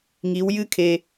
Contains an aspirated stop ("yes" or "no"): yes